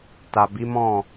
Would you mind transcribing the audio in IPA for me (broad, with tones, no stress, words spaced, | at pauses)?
ta˨bi˨˦mɔ̃˦˨